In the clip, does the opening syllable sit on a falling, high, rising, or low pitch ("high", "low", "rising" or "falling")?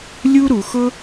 high